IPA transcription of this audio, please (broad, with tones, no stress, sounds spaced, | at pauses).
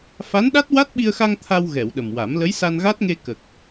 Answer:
f a˧˥ n ɗ a˦˥ t̚ w a˦˥ t̚ ɓ i˧ ə̯ x a˧ ŋ t̪ʰ a˧ w ɣ ɛ˨˩˨ w ɗ ə˨˩ m w a˨˩˦ m l ə˧˥ j s a˧ n ɣ a˦˥ t̚ ŋ e˧ k ə˨˩ k̚